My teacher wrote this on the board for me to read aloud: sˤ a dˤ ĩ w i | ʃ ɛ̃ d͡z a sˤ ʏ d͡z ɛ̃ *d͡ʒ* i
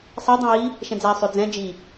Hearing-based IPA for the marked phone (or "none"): d͡ʒ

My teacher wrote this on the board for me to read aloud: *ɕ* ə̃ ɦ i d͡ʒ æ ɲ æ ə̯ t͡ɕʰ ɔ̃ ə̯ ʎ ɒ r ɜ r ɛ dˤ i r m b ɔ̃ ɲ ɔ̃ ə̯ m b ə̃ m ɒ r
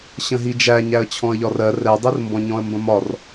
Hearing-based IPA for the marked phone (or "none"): ɕ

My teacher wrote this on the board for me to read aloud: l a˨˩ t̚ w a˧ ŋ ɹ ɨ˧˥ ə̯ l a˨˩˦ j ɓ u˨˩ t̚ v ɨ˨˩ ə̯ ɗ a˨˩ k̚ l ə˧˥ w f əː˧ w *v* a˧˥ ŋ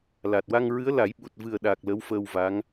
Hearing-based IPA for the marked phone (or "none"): v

